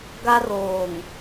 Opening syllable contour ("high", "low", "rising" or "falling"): high